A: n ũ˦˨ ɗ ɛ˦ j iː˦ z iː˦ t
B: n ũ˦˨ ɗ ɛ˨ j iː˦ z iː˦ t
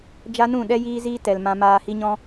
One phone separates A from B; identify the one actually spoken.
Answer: A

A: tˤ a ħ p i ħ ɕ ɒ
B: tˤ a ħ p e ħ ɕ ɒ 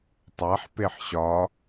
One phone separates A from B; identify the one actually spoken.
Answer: B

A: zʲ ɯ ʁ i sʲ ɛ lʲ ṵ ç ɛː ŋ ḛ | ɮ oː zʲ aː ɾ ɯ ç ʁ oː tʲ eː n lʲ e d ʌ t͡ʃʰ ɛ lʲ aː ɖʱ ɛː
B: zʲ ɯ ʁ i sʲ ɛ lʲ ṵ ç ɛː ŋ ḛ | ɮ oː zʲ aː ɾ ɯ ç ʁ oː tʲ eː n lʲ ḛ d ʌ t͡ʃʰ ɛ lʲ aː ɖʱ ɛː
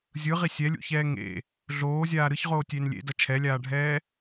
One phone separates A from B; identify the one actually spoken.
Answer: B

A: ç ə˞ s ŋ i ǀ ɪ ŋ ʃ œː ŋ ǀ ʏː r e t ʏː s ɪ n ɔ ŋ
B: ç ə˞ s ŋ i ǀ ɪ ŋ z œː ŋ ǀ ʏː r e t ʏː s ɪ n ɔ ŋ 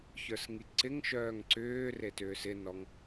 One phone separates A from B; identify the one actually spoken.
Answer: A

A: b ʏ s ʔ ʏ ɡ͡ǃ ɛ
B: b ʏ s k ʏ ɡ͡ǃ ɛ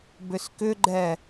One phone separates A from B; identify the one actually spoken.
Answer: B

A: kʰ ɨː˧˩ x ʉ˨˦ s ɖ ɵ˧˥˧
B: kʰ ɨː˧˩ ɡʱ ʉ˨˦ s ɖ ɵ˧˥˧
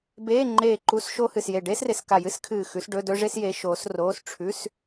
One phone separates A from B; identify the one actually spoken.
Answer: A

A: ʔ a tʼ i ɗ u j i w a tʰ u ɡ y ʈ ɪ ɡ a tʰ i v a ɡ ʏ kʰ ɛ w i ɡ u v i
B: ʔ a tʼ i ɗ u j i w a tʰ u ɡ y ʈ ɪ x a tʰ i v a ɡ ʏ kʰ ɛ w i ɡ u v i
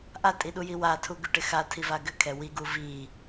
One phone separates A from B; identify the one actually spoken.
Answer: B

